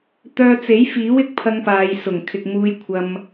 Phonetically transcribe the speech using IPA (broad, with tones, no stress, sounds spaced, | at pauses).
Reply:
t̪ œː˧ t͡s e˨˥ j f iː˨˥ w ɪ˨ k̚ pʰ ɐ˥ ŋ p aː˧ j s ʊ˨˩ ŋ kʰ ɪ˨ k̚ m uː˧ j kʷʰ ɐ˧ m